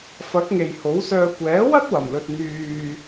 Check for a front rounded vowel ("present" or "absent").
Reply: present